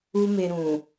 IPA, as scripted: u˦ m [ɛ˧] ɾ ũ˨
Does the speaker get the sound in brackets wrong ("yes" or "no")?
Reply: yes